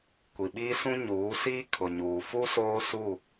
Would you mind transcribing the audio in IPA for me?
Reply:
kʷ i˨ ɓ iː˦ s ũ˦ ɲ uː˨˦ s iː˦ kʰ ʊ˨ ɲ uː˨ f u˦ s oː˦ s u˦˨

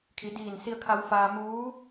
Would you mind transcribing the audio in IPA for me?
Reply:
kʰ i˩˧ d iː˧˩ n s i˧ ə̯ kʰ a˧ w f aː˧ m uː˧˥

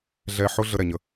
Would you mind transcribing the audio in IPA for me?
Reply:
ɮ ɛ˧ ħ ʊ˦ ɮ ə˦ ɾ ɛ˨ ɲ ə˦

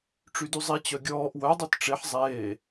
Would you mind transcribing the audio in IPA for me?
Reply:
ʈ͡ʂ y d y zˤ i t͡ɕ œ ɡʲ ɔː ʔ w œ dˤ œ t ʈ͡ʂ e ħ zˤ eː

